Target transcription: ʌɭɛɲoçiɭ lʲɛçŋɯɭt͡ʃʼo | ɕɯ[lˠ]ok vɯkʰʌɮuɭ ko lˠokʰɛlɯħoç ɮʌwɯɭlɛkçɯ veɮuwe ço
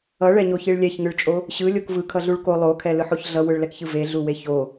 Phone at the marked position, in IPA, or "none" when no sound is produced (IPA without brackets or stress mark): lʲ